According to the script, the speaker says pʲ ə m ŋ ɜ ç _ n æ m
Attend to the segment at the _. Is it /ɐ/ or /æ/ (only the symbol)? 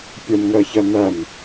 ɐ